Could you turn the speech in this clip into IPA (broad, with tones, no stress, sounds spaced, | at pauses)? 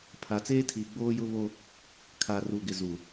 pʰ a˨ t͡s eː˦ tʰ iː˨ ɡ͡b oː˦ j ʊ˦ β o˦ | kʰ a˨ r u˨ ɡ ɪ˨ z u˨